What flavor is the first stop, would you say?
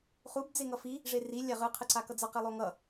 plain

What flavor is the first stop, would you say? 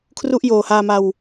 aspirated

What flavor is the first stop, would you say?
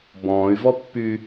plain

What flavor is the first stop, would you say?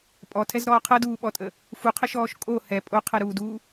ejective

